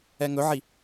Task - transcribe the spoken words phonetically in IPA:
ɛŋɵʕi

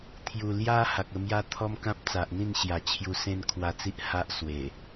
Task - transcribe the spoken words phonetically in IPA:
t̪ʰju˨˩ lja˦ ha˨k̚ə˧mja˦ t̪ʰɔ˦mkã˦p̚ t͡sa˨ʔn̪ĩ˥˧nɕja˨˩ t͡ɕʰju˧sẽ˦nkʰwa˧t͡si˦ʔ ha˦ʔswe˨˩

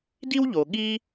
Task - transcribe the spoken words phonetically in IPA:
di˥wʎo˩ ɠi˥

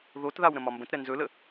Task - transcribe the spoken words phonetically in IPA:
ðotðaw ɾə̃mɒmbə̃tɾɛ nzɵlə

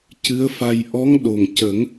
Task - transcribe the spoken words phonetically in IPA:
cɨ˧˥ə̯fa˧j ʔɔ˧˥ŋɗo˨˩ŋ cə˨˩˦ŋ

